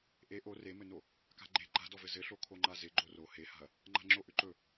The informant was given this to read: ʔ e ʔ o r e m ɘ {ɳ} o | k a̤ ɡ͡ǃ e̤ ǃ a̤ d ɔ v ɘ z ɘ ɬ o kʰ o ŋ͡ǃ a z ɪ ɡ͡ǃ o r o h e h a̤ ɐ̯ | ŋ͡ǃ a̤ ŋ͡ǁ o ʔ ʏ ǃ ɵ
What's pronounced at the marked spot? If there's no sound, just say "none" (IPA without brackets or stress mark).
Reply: n